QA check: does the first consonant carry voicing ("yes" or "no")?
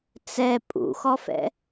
no